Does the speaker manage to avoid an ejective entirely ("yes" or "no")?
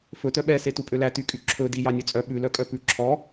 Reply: no